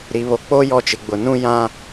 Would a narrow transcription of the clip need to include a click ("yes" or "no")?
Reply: no